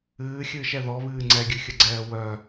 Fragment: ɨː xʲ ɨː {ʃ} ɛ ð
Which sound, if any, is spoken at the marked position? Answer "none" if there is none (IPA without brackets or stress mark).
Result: ʃ